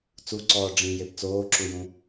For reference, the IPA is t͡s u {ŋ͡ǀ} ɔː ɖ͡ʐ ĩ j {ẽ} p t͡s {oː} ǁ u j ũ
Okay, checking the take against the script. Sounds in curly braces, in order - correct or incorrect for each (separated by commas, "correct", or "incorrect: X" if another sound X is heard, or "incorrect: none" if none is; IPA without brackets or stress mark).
incorrect: ǀ, incorrect: e, correct